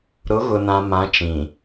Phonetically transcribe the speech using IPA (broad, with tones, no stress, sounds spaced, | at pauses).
ɾ ʊ˨˦ ɣ ʊ˨ n ã˨ m ã˨˦ t͡ʃ ĩ˨